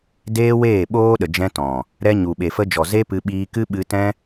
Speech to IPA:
d eː˦ w eː˦˨ ɓ oː˦ ɗ ə˨ d͡ʒ ɛ̃˧ t ɔ̃˨ | ɾ ɛ˧ ɲ u˨ ɓ e˨ f ə˧ d͡ʒ ɔ˨ z e˦ p ɨ˧ ɓ iː˧ k ɨ˦ ɓ ɨ˧ t ɛ̃˦

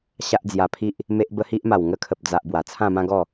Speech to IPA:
ɕ a˦ ʔ d͡z j a˧ pʰ i˦ ʔ | m e˦ ʔ b ə˦ h i˦ ʔ m a˨˩ w ŋ ə˧ kʰ ə˨ p̚ d͡z a˨ ʔ b w a˨˩ t͡sʰ ã˥˧ m ã˦ ɡ ɔ˥˧

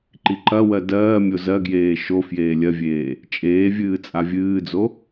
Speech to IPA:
ǃ i ǃ ɐ w ɜ d ɜː mʲ o z ɜ ɡ j eː ʃ o f j eː lʲ ɜ vʲ eː | t͡ʃʼ eː vʲ ɨː t͡sʼ a vʲ ɨː d͡z o

